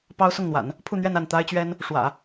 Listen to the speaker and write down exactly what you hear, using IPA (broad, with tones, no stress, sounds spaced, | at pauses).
p ɑ˥ ʊ̯ s ʊ˥˩ ŋ n̪ w a̰˨˩˦ n | pʰ u˥˧ n̪ ɥ ɛ˥˧ n a˥˩ n t̪ a˥ ɪ̯ t͡ɕ ɥ ɛ˥ n | ʂ w ä̰˨˩˦